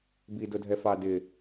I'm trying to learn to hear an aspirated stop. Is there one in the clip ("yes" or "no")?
no